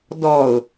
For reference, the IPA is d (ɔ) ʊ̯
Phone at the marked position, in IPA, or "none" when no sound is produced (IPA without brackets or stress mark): ɔ